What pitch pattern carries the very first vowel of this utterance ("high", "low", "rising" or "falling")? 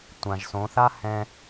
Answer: low